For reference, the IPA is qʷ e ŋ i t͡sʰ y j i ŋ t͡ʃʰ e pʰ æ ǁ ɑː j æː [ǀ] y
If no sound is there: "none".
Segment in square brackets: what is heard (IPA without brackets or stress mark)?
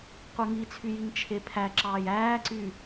ǀ